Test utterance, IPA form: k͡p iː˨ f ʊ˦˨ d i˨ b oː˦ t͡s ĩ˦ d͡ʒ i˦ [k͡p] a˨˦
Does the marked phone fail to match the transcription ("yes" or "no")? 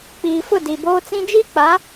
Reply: no